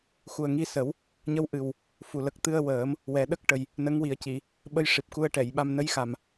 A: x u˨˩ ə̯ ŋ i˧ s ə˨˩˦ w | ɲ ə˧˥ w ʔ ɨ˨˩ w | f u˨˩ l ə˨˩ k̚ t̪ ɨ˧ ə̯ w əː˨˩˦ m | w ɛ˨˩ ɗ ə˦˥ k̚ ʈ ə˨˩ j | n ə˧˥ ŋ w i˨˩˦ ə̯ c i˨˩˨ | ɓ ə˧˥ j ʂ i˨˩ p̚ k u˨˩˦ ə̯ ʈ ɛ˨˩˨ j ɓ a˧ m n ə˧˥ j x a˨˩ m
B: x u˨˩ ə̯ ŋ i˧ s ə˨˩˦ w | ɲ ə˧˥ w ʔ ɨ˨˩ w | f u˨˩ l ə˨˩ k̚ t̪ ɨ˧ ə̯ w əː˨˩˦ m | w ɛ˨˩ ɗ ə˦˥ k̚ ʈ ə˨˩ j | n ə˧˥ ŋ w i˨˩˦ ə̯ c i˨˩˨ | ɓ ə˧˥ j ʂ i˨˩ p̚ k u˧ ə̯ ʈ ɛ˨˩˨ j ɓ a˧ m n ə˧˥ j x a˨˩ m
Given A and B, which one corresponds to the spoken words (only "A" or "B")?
B